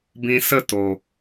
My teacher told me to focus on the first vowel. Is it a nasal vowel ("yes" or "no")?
yes